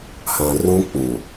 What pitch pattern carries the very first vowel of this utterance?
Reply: low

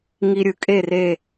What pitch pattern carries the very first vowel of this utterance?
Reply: low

